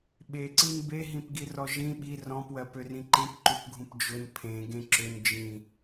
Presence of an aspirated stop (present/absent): present